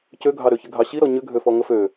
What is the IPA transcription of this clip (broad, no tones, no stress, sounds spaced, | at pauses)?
c ø ɡʱ ɑ ɾ ø ç ɪ ɡʱ ɑ ɕ i ɾ ɔ ɲ ʏ ɡʱ ø f ɔ ŋ ə f ø